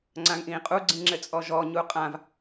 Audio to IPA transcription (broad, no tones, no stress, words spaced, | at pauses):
ŋ͡ǀãŋʔĩːqʼu ɡ͡ǀĩŋ͡ǁɘt͡sʼɔʒɔː ɲuqʼãv